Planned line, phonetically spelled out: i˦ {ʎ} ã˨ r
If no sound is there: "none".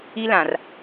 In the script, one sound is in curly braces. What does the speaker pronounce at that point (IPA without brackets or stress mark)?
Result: l